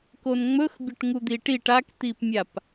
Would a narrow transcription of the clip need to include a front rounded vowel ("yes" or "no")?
no